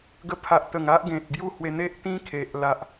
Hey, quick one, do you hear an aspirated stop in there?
yes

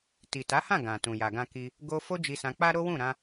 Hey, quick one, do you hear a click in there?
no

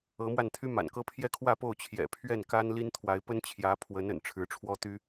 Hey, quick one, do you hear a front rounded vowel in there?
yes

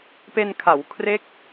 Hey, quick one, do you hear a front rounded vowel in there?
no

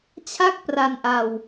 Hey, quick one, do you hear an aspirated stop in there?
yes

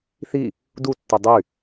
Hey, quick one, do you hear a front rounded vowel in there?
yes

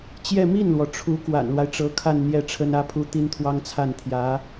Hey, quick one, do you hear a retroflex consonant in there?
yes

